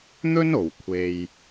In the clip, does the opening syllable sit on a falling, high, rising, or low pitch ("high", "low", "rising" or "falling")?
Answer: high